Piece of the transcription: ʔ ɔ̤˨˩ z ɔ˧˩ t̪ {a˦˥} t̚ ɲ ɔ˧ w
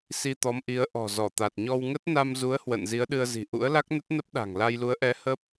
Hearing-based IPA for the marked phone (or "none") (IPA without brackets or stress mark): a˨˩